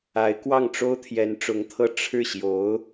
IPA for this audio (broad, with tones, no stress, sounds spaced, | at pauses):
a˧˥ ɪ̯ k w ɑ˥˩ ŋ ʈ͡ʂ o˥ ʊ̯ t̪ʰ j ɛ˧˥ n ʈ͡ʂ ʊ˧˥ ŋ t̪ʰ ɤ˥˧ ʈ͡ʂʰ ɻ̩˥˩ ɕ j o˧˥ ʊ̯